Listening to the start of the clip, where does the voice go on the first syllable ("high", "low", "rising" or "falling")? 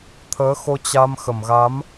rising